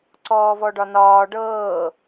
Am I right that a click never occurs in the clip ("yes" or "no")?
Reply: no